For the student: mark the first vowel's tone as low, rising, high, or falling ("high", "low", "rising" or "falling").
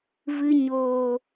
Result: low